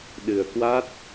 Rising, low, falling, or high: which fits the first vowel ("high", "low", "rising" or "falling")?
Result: low